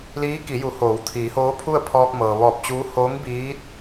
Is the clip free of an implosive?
yes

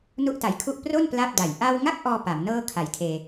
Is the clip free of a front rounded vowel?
yes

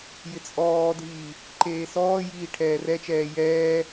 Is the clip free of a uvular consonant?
yes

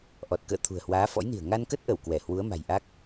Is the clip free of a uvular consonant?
yes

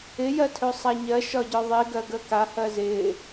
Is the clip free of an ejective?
yes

